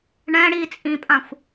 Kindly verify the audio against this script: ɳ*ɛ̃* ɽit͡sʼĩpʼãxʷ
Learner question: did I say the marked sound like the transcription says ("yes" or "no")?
yes